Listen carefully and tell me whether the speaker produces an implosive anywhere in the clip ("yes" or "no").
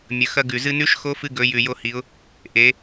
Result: no